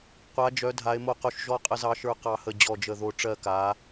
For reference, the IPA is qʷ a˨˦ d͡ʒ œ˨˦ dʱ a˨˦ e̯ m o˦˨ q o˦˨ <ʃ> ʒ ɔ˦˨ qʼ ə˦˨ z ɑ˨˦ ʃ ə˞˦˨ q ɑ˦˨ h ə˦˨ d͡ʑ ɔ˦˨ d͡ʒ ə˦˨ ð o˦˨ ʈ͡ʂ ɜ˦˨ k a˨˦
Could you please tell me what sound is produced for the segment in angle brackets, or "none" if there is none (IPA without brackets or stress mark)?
ʃ